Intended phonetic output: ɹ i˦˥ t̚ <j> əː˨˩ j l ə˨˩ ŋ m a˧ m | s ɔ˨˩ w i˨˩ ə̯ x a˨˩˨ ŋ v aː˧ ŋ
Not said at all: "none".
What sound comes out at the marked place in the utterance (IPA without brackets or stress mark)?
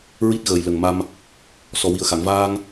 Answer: ɣ